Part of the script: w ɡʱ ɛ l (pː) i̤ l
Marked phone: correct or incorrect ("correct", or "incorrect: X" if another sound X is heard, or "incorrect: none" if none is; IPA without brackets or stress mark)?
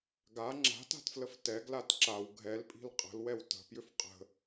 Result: incorrect: pʼ